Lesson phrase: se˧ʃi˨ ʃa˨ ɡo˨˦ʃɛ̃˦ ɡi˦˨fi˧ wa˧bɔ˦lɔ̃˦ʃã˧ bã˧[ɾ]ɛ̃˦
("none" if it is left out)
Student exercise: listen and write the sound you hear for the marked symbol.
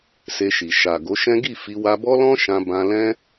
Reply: l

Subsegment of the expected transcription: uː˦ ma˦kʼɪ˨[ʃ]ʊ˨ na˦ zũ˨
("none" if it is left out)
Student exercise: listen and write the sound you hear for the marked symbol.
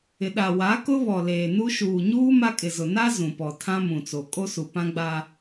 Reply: z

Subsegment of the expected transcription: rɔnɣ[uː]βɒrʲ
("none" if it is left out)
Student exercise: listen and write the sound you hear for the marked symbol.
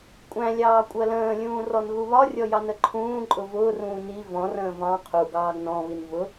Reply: u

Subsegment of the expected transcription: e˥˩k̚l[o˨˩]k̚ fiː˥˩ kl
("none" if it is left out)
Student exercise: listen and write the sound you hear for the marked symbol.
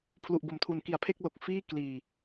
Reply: o˨˩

